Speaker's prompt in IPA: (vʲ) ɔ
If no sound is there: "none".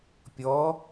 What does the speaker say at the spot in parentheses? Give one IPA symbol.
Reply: pʲ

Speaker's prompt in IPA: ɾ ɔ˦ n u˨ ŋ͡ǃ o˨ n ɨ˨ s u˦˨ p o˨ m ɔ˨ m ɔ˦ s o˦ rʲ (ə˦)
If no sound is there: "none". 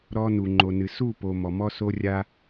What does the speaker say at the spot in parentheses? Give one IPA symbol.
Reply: a˦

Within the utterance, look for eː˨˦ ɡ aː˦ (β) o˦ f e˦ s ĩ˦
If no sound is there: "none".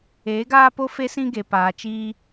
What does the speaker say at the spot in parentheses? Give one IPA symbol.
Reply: p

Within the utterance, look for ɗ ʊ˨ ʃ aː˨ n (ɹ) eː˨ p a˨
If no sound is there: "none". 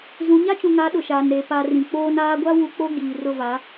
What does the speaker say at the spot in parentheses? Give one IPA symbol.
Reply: ɾ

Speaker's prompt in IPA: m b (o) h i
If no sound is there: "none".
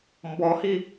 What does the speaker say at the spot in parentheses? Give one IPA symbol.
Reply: ɔ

